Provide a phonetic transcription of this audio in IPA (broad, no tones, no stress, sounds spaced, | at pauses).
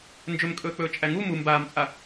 n d͡ʒ ɵ m kʼ ɵː k͡p ɵː t͡ʃʼ æ ŋ u m u m b aː m t͡sʼ a